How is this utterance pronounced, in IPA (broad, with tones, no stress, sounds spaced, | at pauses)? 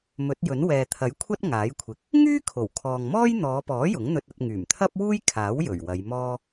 m ɵ˨˥ t̚ j ɵ˨˥ n w ɛː˨ t̪ʰ ɐ˨˥ j kʷʰ ɐ˥ t̚ ŋ aː˨˥ j kʷʰ ɪ˨ k̚ | ŋ yː˥ kʰ o˨˩ w kʰ ɔː˨ ŋ m ɔː˥ j n̪ ɔː˨˧ p ɔː˨˥ j ʊ˨˥ ŋ n̪ ɵ˧ t̚ ɐ˧ t̚ ŋ yː˨˩ m t̪ʰ ɐ˥ p̚ w uː˥ j kʰ aː˨˥ w j ɵ˨˩ ɥ w ɐ˨˧ j m ɔː˥